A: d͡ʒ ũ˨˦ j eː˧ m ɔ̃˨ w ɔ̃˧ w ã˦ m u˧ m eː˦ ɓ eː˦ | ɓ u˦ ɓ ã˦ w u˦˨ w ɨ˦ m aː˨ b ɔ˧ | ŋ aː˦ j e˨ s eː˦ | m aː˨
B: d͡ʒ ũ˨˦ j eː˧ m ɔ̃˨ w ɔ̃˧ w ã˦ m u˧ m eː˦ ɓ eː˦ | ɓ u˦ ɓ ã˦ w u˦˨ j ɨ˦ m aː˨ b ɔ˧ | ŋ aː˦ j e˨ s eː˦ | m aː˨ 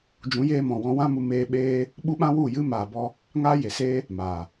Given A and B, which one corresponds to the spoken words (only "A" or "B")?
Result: B